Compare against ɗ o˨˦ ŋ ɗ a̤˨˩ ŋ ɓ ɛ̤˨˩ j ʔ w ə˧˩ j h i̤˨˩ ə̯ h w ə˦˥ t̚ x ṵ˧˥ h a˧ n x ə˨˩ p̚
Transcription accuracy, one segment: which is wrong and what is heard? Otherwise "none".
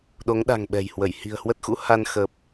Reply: ʔ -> h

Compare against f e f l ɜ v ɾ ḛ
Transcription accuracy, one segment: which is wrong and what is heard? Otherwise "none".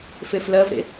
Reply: none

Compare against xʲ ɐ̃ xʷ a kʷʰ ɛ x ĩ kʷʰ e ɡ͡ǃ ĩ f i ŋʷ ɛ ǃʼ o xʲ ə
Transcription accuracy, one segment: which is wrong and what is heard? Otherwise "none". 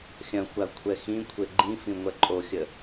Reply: i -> ĩ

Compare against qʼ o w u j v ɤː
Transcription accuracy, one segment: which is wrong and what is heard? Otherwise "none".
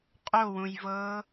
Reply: u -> ũ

